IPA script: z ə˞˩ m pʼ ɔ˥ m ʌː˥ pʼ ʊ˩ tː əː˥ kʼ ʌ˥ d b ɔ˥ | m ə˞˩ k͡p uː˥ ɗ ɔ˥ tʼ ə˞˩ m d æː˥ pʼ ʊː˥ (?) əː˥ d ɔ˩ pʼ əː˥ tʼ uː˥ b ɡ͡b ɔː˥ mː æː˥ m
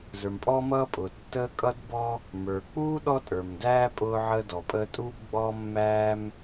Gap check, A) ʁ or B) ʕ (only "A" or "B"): B